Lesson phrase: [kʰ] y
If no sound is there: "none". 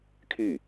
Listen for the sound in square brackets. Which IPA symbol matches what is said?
kʰ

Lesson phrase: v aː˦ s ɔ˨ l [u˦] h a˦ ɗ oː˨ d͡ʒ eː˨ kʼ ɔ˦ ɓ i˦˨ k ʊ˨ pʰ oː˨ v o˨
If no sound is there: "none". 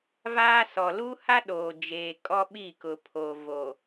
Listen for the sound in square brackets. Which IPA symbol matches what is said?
u˦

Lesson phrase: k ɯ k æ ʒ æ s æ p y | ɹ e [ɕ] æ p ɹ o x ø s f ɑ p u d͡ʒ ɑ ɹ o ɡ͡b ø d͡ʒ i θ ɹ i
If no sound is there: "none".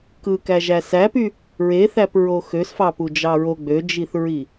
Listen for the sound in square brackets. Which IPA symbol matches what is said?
θ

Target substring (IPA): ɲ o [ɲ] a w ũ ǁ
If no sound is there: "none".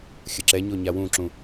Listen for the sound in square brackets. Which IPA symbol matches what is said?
ɲ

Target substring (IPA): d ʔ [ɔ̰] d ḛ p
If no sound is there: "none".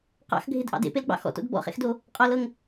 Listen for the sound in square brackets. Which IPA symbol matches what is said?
ɑ̰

